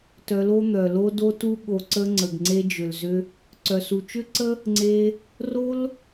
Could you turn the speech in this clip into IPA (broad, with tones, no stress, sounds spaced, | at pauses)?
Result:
t œ˧ l o˦ n̪ œ˨ l o˦ d o˧ t u˧ ɠ o˨ ǀ ə˧ ŋ͡ǀ ə˨ ɡ ŋ͡ǀ e˧ d͡ʒ ʏ˨ l z ʏ˧ | ǀ œ˨ s u˨ t͡ʃ ʏ˦ ǀ ə˦ | ŋ͡ǀ e˧ | r o˧ l